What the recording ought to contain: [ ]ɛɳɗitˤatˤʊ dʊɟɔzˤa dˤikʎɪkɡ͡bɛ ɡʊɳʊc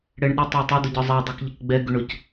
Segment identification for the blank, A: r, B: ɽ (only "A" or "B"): B